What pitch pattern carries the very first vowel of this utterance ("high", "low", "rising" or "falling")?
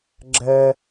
high